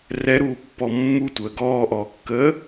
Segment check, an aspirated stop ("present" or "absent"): absent